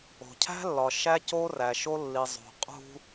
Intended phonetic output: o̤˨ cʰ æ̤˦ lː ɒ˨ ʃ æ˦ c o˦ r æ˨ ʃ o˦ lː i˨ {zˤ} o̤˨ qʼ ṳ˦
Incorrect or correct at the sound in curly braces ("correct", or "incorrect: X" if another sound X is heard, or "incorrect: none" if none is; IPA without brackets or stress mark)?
correct